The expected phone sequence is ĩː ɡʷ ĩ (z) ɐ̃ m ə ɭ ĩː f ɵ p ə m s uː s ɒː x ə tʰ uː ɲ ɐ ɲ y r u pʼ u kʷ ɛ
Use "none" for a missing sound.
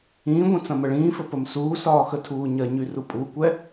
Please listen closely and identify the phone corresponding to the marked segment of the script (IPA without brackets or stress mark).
t͡s